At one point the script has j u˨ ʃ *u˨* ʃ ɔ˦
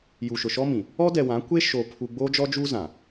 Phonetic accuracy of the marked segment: incorrect: ʊ˨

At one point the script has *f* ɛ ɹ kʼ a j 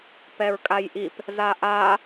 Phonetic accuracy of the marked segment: incorrect: p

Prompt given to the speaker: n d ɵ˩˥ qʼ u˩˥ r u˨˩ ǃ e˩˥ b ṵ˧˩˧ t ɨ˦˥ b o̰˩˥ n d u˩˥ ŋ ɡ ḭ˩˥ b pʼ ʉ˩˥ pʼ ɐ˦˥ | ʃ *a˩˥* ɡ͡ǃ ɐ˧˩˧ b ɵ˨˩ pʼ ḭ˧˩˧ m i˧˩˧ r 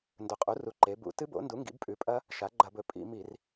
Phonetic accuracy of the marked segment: correct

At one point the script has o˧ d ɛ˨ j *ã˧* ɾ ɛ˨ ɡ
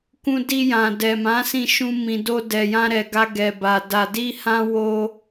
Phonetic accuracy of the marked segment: correct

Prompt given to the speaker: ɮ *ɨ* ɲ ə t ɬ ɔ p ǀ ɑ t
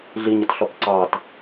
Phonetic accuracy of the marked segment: incorrect: i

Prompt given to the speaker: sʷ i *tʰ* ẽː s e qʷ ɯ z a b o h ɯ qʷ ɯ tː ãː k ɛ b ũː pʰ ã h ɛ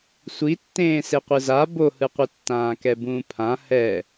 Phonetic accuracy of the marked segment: incorrect: tː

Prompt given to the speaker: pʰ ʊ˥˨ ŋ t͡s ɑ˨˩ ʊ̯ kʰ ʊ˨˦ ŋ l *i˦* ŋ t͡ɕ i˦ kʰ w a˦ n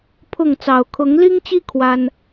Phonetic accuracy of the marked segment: correct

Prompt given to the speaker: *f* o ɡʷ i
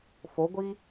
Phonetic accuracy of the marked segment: correct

